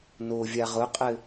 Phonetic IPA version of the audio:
n o vʲ a ʁ ʊ qʼ ɘ

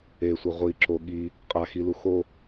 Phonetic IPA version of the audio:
e sʷ ɛ ʁʷ i ǁ o ɠ i | qʼ a x i l u x o

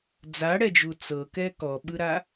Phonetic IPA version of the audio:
d͡z a ɽ ɛ d͡ʒ u t͡s ɤ k ɛ k ɔ ɓ ɯ ɾ a

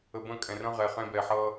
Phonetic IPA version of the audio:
ə˧ b ə̃˦˨ kʼ ɛ̃˨ r ə̃˧ ʁ ɛ˨ χ ɛ̃˧ b ɛː˨ ħ ʌː˧

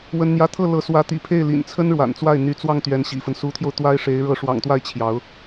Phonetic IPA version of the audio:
w ə˥ n n̪ j ä˥˧ t̪ʰ ɤ˥˩ l ɤ˧˥ s w ä˧˥ t̪ ḭ˨˩ pʰ e˥˩ ɪ̯ l ḭ˨˩ n t͡sʰ ə˥ n ɻ w a̰˨˩ n t͡s w a˥˩ ɪ̯ n̪ y˧˥ t͡s w ɑ˥˩ ŋ t̪ ɥ ɛ˧˥ n ɕ ḭ˨˩ f ə˦ n s u˧˥ t̪ʰ j o˧ ʊ̯ t̪ w a˥ ɪ̯ ʂ e˧˥ ɪ̯ ɻ ɤ˧˥ ʂ w ɑ̰˨˩ ŋ t̪ w a˥˩ ɪ̯ t͡ɕʰ j ɑ˧˥ ʊ̯

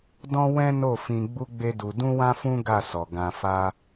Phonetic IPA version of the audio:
d ɔ̃˦ w ɛ̃˦ n o˦˨ f ĩ˧ ɡ͡b u˦ ɡ͡b e˦ d u˧ d ũ˦ w ã˦ f ũ˦ ɡ a˦˨ s ɔ˨ ɡ ã˧ f a˦

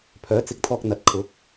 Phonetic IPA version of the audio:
pʰ œː˨˥ t͡s ɪ˨˥ k̚ t̪ʰ ɔː˧ k̚ n̪ ɐ˨˥ t̚ kʰ ʊ˨˥ k̚

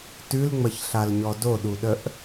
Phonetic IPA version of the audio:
t ʉ l ŋ͡m ə ç ɬ a l ɲ ɔ d o ɗ u ɗ ə ʔ

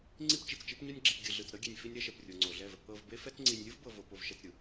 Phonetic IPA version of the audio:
ŋ͡ǀ i˦ p t͡ʃ i˨ t͡s t͡ʃ i˦ p ɲ o˦ nʲ ɡ͡ǁ i˨ p ɡʲ ɯ˨ ɮ ɯ˨ t͡s ɾ ɤ˦ ɡʲ e˨ nʲ f i˦ nʲ ɾ ɛ˦ ʃ ɛ˨ p rʲ o˨ ŋ͡ǀ o˨ ɮ ɛ˦˨ v | ɤ˨ v b e˦ f ɛ˦ t͡s ŋ͡ǀ i˨ nʲ lʲ ɯ˦ v b ɤ˨ v o˨ p o˨ v ʃ ɛ˨ t͡s ɾʲ ɯ˨

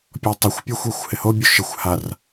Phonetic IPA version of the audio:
pʲ ɔ tˤ ɪ xʷ pʲ a xʷ ɛ xʷ h ɪ h o bʲ u ʃ ɪ xʷ h a r

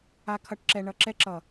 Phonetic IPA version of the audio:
a˧ kʰ ʌ˧ ʈ ǁ ɛ˧ ɳ ʌ˨˦ ǁ ɛ˧ ǁ ʌ˨

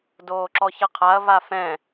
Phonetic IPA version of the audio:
d oː ǁ ɔ ç ɤ qʰ a ɐ̯ v a f ɛ̃

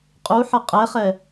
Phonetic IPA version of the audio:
qʼ u ħ ʌ qʼ ɛ χ ɛ

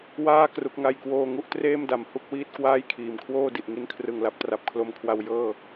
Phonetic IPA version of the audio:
w aː˥˩ k r u˦˥ k̚ ŋ a˥˩ j k w oː˥˩ ŋ u˥˩ ʔ t r eː˥˩ m d a˨˩ m h u˥˩ k̚ w iː˥˩ t̚ k w aː˥˩ j kʰ iː˨˩ m kʰ w oː˥˩ d i˨˩ ʔ ŋ i˧ n kʰ r ɯ˨˩ ŋ l a˦˥ p̚ t r a˨˩ p̚ kʰ l o˧ m kʰ w a˧ w j ɤː˥˩

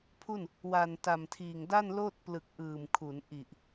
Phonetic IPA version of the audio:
pʰ u˥˩ n | w a˨˩ n t a˨˩ m tʰ iː˨˩ ŋ d a˥˩ n l oː˥˩ t̚ p l ɯ˨˩ k̚ ʔ ɯː˨˩ m kʰ u˩˦ n ʔ i˨˩ ʔ

